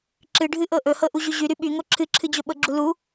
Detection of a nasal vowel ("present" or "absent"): absent